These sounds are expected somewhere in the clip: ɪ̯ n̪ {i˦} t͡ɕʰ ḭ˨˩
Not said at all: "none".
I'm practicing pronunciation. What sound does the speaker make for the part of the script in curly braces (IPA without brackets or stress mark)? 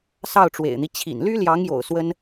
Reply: i˦